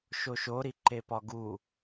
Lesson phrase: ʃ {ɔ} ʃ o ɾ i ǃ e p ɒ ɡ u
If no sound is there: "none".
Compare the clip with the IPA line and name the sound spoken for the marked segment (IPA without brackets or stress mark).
o